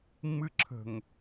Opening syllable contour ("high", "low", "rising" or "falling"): high